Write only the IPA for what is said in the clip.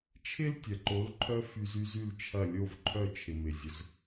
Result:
t͡ʃʰ ɪ˥ l tʲ ɐ˩ ǃ o˩˥ l ǃʰ œ˥ f y˧ z y˥ z y˥˩ l t͡ʃʰ ɐ˥˩ lʲ o˥˩ v ǃʰ œ˥˩ t͡ʃʰ ɪ˩ m ɪ˩ zʲ ʊ˩˥ z

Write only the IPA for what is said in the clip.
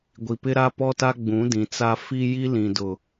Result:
ɡʷ i˨ p ɪ˦ ɾ a˦ p ɔ˦ t a˦ ɡ͡b ũ˨˦ d ĩ˨ t͡s a˦ f i˦ j i˦ l ĩ˨ d ʊ˨

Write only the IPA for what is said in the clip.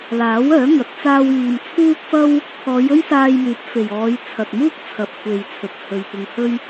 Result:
l aː˨˥ w œː˨˥ ŋ ɐ˨˥ t̚ t͡s aː˧ w iː˨ m t͡sʰ uː˥ k̚ f ɐ˥ w | pʰ ɔː˨˧ j ɵ˥ ɥ s aː˧ j m yː˨˥ p̚ f e˨ j ɔː˨˧ j t͡sʰ ɐ˨ t̚ m uː˥ k̚ t͡sʰ ɐ˨ p̚ kʷʰ e˨ j t͡sʰ ɵ˨ t̚ h ɵ˧ ɥ p ʊ˧ ŋ h ɵ˥ ɥ

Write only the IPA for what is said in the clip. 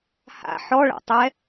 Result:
h a̰ ħ ɔ ɭ a̰ tˤ ɛ

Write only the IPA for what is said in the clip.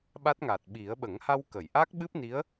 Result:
ɓ a˦˥ t̚ ŋ a˨˩ t̚ ɓ i˨˩˦ ə̯ ɓ ə˨˩˦ ŋ h a˧ w k ə˨˩˨ j ʔ a˦˥ k̚ ɓ ɨ˦˥ p̚ n i˧˥ ə̯

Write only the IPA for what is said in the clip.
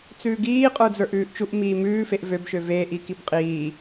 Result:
t͡s ʉː ɡ iː qʼ ə˞ d͡z ə˞ ʔ ʉː ʔ t͡ʃ u ʔ m iː m ʉː f e ʔ v ø b ʃ ø v e ʔ i k i b qʼ iː

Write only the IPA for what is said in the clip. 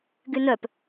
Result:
ɡ y n œ p

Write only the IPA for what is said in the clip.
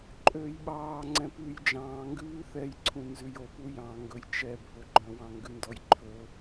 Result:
ǃʼ øː j ɓ ɑː ŋ͡ǀ ɛ̃ p ʉː j d͡ʒ ɑ̃ː ŋ ɡ ʉː θ ɛ j ǀʰ ũ n z ʉ j o p u j ɑ̃ ŋ ɡ ɵ j t͡ʃ ɛ bʱ ɵ ɡ͡ǃ œ̃ w ɑ̃ ŋ ɡ ʉ n d ɔ j ǃʰ ɵ

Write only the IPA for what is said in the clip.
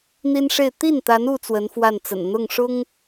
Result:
n̪ i˥ n ʂ e˥˧ ɪ̯ t̪ i˥˩ n t̪ a˧˥ n u˥ t͡s w ə˧˥ n f w a˥˩ n t͡s ə̰˨˩ n n̪ ʊ˥˩ ŋ ʂ ʊ˥ ŋ

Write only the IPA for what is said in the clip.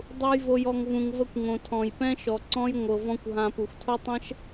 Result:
dˤ u˨ j v o˨ j ɔ˨ ŋ v ũ˨ ŋ v ə˧ kʷ ŋ õ˨ tʰ ɔ̃˨ j p ɛ̃˦ ʃ ɔ˨ ǀ ɔ̃˦ j ŋʷ ɤ˧ v ɔ̃˦ kʷ ɦ ã˧ p u˨ xʷ tʰ o˦ tˤ ɛ̃˦ ʃ

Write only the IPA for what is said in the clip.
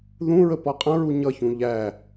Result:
ð ũ ɹ ə p ɔ qʼ ə̃ ɹ u ɲ ʌ ç ũ ʎ æ

